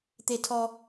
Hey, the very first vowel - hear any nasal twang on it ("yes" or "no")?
no